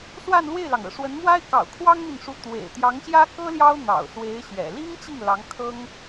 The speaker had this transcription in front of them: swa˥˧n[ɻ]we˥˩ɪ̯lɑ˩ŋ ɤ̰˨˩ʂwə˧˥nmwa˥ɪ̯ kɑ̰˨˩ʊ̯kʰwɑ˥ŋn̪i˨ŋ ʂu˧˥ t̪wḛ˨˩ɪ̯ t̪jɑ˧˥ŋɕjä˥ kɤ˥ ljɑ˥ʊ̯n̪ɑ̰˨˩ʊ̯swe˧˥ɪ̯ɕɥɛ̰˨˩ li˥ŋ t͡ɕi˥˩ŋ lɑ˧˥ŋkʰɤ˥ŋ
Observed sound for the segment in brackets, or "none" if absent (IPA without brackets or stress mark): l